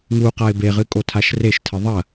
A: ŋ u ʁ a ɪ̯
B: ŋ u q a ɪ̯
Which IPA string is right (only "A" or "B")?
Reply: B